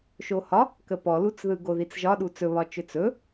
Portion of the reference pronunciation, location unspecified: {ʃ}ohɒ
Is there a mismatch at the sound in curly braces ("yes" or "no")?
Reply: no